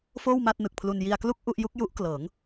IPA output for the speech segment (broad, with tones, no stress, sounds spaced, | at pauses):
f oː˥˩ w m a˥˩ t̚ n ɯ˨˩ k̚ pʰ l u˧ n j i˧ a̯ k l u˥˩ k̚ ʔ u˥˩ ʔ j u˦˥ k̚ j u˦˥ ʔ k l ɤː˩˦ ŋ